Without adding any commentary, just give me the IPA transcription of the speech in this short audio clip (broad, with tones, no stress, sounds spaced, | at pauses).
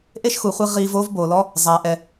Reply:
ʔ e˥ ʃ x u˩ χʷ i˧ ʁ iː˧ v oː˥ v b oː˩ l ɔ˥ | zˤ aː˩ ʔ ɛ˩